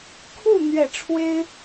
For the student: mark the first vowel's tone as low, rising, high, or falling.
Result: falling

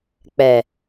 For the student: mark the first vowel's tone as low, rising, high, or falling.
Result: low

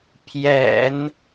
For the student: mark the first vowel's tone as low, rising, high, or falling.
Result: low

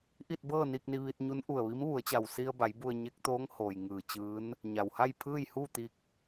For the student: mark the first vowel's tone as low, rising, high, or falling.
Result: falling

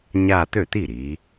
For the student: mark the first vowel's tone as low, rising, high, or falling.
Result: falling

